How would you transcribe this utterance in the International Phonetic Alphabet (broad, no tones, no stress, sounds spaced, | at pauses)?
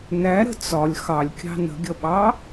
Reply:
n æ ɾ ə̤ t͡s ɒ lʲ x ɑ lʲ kʲ ɑ̤ n ə̤ ɡʲ ʌ ɓ ɑ